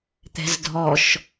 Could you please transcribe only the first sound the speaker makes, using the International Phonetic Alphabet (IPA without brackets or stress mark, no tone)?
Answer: t̪